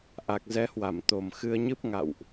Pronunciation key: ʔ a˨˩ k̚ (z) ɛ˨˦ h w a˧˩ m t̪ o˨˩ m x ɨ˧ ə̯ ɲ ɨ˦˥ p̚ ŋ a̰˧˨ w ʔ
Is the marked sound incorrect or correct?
correct